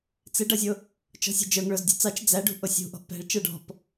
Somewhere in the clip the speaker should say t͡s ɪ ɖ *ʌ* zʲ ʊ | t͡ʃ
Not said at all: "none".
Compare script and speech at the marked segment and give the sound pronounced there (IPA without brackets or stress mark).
ʌ